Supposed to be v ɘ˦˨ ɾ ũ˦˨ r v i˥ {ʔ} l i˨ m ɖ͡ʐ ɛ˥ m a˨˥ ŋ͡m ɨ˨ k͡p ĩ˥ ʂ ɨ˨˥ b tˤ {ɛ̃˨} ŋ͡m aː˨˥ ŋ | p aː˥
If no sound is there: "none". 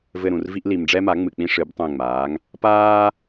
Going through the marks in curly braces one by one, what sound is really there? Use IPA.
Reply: ʔ, ɛ̃˦˨

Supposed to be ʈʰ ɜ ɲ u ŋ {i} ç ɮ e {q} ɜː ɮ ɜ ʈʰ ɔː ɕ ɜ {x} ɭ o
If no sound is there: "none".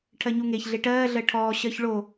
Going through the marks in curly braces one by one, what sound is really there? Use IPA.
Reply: e, ʈ, ç

